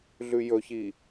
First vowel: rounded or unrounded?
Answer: rounded